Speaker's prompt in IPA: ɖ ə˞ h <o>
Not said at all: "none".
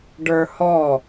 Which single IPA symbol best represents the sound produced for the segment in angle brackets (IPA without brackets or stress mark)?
ɔ